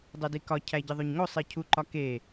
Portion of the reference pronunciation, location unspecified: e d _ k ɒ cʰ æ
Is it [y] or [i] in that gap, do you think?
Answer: i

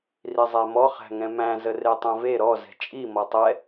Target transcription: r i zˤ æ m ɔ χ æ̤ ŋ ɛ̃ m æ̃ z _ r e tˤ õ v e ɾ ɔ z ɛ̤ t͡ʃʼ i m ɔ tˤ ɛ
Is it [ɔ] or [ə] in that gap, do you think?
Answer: ə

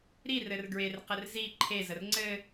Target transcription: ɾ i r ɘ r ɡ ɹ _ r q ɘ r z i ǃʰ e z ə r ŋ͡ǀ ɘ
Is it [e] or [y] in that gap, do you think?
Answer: e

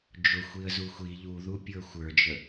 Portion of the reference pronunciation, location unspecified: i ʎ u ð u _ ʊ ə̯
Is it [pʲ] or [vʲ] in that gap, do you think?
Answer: pʲ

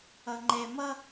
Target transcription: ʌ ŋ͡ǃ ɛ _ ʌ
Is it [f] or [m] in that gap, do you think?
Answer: m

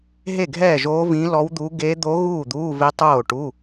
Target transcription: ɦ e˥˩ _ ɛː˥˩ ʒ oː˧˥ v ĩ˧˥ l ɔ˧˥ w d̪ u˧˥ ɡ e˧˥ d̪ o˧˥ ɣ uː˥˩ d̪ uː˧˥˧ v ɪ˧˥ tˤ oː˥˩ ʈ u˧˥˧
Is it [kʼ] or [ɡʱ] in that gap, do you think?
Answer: ɡʱ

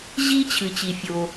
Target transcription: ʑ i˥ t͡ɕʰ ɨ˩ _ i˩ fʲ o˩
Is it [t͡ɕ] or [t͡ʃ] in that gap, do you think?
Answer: t͡ɕ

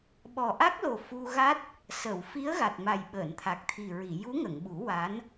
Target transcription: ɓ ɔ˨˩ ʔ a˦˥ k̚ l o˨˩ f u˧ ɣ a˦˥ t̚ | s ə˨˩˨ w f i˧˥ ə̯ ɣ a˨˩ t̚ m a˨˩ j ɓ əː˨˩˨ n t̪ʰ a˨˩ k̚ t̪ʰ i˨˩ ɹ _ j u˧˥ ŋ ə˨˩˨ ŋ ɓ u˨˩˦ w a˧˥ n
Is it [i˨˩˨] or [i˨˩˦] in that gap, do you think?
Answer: i˨˩˨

